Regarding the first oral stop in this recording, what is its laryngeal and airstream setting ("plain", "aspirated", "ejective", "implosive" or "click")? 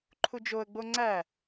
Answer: click